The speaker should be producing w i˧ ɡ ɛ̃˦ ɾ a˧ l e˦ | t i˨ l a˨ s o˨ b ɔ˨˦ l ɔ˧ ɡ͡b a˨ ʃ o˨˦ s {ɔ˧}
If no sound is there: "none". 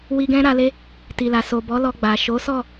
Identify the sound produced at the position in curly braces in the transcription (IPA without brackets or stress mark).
ɔ˦˨